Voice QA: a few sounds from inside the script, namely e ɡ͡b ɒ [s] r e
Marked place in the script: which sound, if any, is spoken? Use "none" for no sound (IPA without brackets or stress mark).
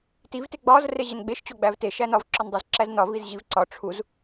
z